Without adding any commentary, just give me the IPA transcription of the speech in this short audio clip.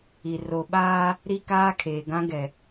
i˨ r o˨ ɓ aː˦ | ɾ i˦ k aː˦ kʰ eː˨ ɡ ã˦ ɡ ɛ˨

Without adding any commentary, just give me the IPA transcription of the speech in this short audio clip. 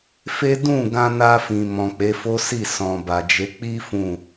f e˦ d ũ˦˨ ɡ ã˧ n a˧ f ĩ˨ m ɔ̃˨ k͡p e˨˦ f o˦ s i˦˨ s ɔ̃˨ b a˨ d͡ʒ e˨˦ k͡p i˦ f ũ˦˨

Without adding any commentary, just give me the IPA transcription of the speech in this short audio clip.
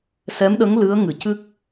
s ɛ˧˥ m ɗ ə˧˥ ŋ l ɨ˧˥ ə̯ ŋ ɨ˨˩˨ c ɨ˦˥ k̚

